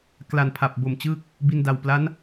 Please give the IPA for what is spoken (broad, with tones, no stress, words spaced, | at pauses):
kla˨˩npʰa˨˩p̚bo˨˩mt͡ɕɯː˦˥k̚ | bi˧nda˨˩w pla˦˥n